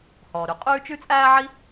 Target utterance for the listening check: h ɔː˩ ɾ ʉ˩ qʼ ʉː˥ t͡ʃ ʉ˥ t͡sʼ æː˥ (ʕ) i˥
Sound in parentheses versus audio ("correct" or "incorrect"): correct